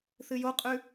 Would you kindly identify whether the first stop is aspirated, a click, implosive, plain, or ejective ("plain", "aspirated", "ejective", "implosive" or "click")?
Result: ejective